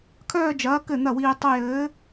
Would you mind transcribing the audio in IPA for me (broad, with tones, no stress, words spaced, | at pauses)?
kʰœː˥˧d͡ʒɐː˨˥ kɘ˥˩n̪ɐ˥˩wiː˧ tˤə˧jɘː˨˥